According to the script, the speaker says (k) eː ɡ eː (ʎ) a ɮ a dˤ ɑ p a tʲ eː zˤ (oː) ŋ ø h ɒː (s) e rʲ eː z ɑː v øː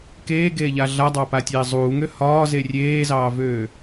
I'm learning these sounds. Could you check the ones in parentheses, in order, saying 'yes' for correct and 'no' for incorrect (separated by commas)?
yes, yes, no, no